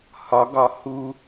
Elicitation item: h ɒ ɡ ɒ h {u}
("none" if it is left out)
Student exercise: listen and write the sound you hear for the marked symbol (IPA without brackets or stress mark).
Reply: u